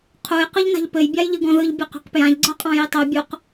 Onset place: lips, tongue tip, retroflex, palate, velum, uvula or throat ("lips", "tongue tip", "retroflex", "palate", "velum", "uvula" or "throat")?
uvula